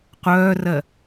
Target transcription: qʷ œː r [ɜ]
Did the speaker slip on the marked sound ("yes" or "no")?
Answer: no